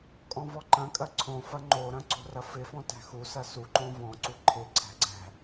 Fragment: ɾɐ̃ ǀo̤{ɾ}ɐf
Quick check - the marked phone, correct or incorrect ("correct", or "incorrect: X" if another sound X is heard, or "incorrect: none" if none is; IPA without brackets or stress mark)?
incorrect: r